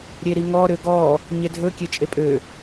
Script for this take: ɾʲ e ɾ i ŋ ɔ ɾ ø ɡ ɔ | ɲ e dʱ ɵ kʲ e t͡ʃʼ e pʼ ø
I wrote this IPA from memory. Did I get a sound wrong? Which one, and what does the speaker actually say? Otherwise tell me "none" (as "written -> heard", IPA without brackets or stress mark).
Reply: none